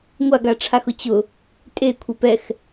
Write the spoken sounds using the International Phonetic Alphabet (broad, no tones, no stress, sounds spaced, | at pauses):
ŋʷ a ɡ a ʈ͡ʂʰ a x ʊ t͡ɕ ʊ | tʼ e kʷʰ e p ɛ x